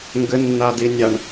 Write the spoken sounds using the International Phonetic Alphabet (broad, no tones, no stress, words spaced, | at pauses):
ŋɡɘnːadinʲaɳ